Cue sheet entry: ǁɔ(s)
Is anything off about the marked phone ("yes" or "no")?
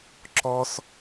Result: no